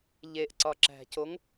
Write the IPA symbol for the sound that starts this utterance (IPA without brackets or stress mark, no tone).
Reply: ʎ